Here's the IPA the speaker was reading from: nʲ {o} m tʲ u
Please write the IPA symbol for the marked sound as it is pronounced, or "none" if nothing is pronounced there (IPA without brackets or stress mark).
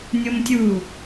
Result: o